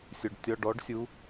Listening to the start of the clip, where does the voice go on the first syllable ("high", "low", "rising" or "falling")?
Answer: low